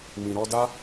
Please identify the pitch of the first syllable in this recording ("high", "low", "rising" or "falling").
low